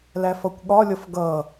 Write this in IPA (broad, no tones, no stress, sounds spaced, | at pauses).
l æ f ʌ kʷ ɠ ɒ lʲ ʌ f ɡ ʌ